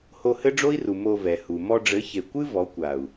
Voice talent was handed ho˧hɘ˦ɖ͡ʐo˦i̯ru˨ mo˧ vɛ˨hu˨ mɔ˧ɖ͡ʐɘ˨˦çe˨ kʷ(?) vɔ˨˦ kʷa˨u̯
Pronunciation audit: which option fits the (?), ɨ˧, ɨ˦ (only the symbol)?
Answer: ɨ˦